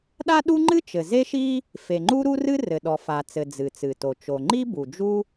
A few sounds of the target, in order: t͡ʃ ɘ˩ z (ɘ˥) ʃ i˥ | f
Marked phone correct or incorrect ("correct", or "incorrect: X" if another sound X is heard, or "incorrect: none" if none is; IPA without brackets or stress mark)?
incorrect: e˥